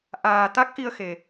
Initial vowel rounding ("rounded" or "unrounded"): unrounded